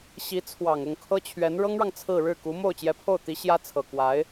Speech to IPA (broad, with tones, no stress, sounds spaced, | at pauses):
ɕ i˧˥ t͡sʰ w ɑ˨˩ ŋ ʊ˥˩ ŋ kʰ ɤ˥ t͡ɕʰ ɥ ɛ˧˥ n ɻ ɤ˥ ŋ ɻ ɑ˨ ŋ t͡sʰ ɹ̩˥˧ ɻ ɻ̩˥˩ k u˧˥ m o˥˩ ʊ̯ t͡ɕ j ɛ˧˥ pʰ o˥˩ ʊ̯ t̪ i˧˥ ɕ j ä˥ t͡sʰ ɤ˨˩ k w a˧˥ ɪ̯